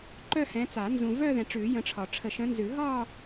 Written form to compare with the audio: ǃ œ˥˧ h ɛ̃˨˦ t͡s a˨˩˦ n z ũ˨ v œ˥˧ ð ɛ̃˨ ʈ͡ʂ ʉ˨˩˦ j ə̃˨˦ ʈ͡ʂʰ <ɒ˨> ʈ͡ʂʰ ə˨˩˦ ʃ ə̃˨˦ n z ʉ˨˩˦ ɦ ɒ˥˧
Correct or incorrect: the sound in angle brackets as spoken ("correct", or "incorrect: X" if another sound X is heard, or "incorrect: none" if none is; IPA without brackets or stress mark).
correct